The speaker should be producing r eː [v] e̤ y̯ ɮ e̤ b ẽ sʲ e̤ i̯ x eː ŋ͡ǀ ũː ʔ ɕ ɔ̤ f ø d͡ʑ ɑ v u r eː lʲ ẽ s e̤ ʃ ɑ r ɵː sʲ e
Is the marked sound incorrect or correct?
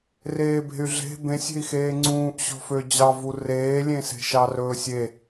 incorrect